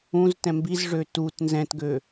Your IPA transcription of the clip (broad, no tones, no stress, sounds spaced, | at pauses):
ũ z t ɛ̃ m b i z ʐ ø t u t n z ɛ̃ t ɡ ø